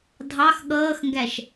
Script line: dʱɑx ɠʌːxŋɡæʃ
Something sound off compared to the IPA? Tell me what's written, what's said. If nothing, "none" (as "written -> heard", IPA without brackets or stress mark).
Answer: none